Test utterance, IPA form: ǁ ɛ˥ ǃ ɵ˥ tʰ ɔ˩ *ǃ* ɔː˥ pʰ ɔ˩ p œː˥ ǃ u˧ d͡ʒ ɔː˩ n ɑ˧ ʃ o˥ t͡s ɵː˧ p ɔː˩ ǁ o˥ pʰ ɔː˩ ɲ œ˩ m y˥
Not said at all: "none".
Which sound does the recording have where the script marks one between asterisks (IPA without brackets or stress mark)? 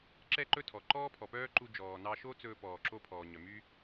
ǃ